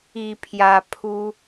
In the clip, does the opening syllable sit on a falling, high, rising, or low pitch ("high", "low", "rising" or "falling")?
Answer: low